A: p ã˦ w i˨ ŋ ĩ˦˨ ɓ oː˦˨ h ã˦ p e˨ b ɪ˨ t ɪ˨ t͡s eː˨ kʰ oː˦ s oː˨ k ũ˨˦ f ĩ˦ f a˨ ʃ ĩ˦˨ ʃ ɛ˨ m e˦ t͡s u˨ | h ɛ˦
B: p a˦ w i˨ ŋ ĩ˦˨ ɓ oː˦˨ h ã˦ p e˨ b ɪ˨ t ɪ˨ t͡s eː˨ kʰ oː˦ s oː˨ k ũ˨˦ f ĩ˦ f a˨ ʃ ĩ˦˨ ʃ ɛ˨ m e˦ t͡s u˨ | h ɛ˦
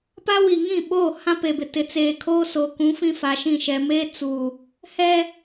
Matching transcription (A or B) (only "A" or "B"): B